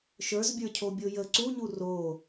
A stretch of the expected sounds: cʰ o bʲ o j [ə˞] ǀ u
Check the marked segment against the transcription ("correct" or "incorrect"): incorrect